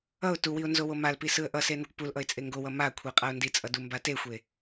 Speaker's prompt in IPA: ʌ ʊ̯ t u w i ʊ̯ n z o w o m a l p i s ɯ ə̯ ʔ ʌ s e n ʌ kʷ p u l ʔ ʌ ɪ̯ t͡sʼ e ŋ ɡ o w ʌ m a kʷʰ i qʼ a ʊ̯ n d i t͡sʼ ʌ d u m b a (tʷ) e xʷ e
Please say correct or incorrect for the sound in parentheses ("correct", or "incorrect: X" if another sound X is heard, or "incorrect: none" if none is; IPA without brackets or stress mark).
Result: incorrect: t